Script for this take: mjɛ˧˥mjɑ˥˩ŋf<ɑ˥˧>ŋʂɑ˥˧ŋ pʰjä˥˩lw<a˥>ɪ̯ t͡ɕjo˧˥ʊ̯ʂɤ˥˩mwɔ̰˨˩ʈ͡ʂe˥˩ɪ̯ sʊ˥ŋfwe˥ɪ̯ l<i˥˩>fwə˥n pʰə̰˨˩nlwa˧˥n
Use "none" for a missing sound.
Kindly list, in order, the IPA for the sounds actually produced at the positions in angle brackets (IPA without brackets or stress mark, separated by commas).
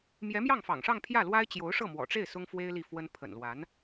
ɑ̰˨˩, a˥, i˥˩